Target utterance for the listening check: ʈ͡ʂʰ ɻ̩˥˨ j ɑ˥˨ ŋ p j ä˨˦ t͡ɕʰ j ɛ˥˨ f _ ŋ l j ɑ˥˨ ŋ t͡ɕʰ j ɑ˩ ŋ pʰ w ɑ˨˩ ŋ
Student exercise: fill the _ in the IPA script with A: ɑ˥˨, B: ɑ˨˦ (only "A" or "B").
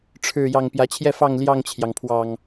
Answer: A